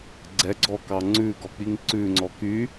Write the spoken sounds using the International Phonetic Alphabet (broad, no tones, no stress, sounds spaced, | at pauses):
ɡ͡ǀ ɛ ɡ͡ǀ ɔ k ɑ ŋ͡ǀ ʉ ɡ ɔ k͡p i ŋ ǀ ʉ ŋ͡ǀ ɔ k y